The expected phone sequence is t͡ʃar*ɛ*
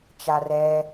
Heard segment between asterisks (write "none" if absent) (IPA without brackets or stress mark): ɛ